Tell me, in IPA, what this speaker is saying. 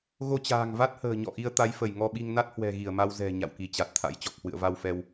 ɣo˧t͡ɕa̤ː˨˩ŋva˦˥t̚hə̤ː˨˩ ɲɔ̰˧˨ʔi˧ə̯ t̪a˨˦jfə˧˩jŋɔ˧ɓi˧ŋ na˦˥t̚hwɛ̤˨˩ ɣi˧˩ə̯ma˧w zɛ̤˨˩ ɲa̰˧˨wki˧˩t͡ɕa˨˩t̚t̪ʰa̰˧˥j t͡ɕɔ˨˩k̚hwɨ̰˧˨ə̯va˧wfɛ˧w

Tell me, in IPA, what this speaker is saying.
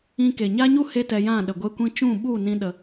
ĩ˧ke˨ɲa˦ɲu˦ he˦tɛ˧jã˦˨ ɗə˨ɡʷe˧kʷĩ˧ t͡ʃũ˦˨ɓu˦˨ nĩ˦ɗə˧

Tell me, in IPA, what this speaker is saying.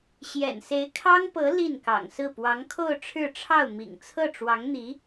ɕjɛ̰˨˩nse˧˥ɪ̯kʰɑ˥ŋpɤ˧˥ li˥˩nkɑ̰˨˩ŋsɹ̩˥˩ pwɑ˧˥ŋkʰo˥˧ʊ̯ʈ͡ʂʰɻ̩˥˧ʈ͡ʂʰɑ˥˩ʊ̯ mḭ˨˩ŋt͡sʰɤ˥˩ʈ͡ʂwɑ˧˥ŋn̪i˧˥

